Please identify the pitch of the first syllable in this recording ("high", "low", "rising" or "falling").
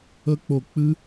high